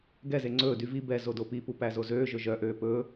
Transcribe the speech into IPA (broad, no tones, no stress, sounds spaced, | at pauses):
ɡ ɛ z e ŋ͡ǀ ɵː d y v i b ɛ z o d o p i p u p æ z o z øː ʒ ɵ ʒ œ ʔ øː p ɵː